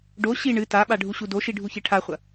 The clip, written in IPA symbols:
ɖ o ɕ i ɳ ɨ t a ɓ a ɖʱ u ɕ u d o ʃ i ɖʱ u ç e ʈʰ a χʷ ɐ

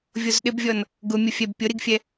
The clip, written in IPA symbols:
vʲ o z ɗ ɪ b vʲ ɔ n | ɡ ʊ mʲ ʊ fʲ ɛ b pʲ ʊ ɾ i ɡ fʲ ɛ

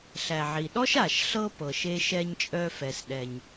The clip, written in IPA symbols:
ɬ æ˩ ʕ i˩ ɗ ɔ˥ ʃ a˩ ʃ ɬ ɤ˥ p ɤ˩ ʃ e˧ ʃ ɛ˧ ɲ t͡ʃʼ œ˧ f ɛ˩ s ɗ ɛ˩ ɲ

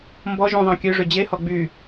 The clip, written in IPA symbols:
m b ɔ ʒ ũ ðˤ ɑ̃ kʲ ø ʐ ø d͡ʑ e h ɔ ɡ͡b y

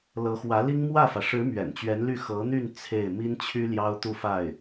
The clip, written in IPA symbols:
l ɤ˧˥ x w ä˧˥ l i˥ ŋ m w ä˥˩ f ä˩ ʂ ɻ̩˧˥ m ɥ ɛ̰˨˩ n t͡ɕ ɥ ɛ˧˥ n l y˥˩ x ɤ˧˥ n̪ y˥˧ n t͡sʰ e˥˩ ɪ̯ m i˥ n t͡ɕʰ y˥ l j ɑ˥ ʊ̯ t̪ u˥˧ f a˥˩ ɪ̯

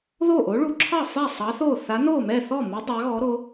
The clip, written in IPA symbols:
ð o˥˩ ʔ o˨˥ ɭ u˨˥ ǁʰ ɑ˥˩ f a˥˩ sˤ ɑ˨˥ θ o˥˩ θ a˨˥ n o˥˩ m ɛ˥˩ θ ɔ˥˩ m u˨˥ dˤ ɑ˨˥ ɣ ɔ˨˥ ɾ o˨˥

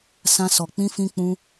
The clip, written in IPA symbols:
s ã˧ s ɔ˨ k͡p ĩ˧ f ĩ˦ k͡p ũ˦

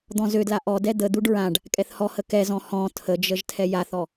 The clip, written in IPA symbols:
d̪ ɔ̃ z ø d l a ʔ ɔ d ɛ d̪ ə d̪ u ɖ ɹ ã ɖ | kʼ ɛ θ h ɔ h ə k ɛ z ɔ̃ h ɔ̃ tʰ ə d͡ʒ ə ʒ tʰ ɛ j a θ ɔ

